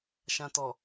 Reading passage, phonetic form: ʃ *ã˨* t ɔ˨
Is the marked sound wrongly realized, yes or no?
no